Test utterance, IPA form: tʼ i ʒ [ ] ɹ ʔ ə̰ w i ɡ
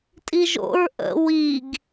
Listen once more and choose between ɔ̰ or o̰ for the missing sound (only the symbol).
o̰